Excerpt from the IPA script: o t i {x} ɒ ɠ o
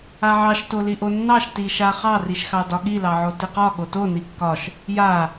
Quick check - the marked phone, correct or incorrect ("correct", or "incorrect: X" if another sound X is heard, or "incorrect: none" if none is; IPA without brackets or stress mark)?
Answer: incorrect: q